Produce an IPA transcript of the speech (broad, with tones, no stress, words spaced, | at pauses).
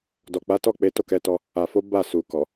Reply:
dɔ˨k͡pa˨˦tɔ˦˨ k͡pe˨˦to˦˨kɛ˨˦tɔ˧ | a˨fo˨˦ ba˦˨su˨kɔ˨